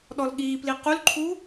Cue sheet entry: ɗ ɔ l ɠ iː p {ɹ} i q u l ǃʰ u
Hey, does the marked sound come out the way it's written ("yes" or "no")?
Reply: no